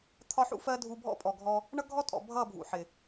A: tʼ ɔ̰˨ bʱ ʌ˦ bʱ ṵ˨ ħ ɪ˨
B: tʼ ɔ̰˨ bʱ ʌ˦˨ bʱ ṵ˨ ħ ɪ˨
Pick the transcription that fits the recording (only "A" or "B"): B